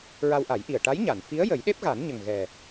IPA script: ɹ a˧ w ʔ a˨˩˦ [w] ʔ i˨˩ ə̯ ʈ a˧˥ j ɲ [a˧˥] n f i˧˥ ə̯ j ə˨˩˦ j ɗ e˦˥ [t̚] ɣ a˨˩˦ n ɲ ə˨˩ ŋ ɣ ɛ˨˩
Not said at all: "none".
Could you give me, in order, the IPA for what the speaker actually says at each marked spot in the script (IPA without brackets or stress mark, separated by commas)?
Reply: j, a˨˩˨, p̚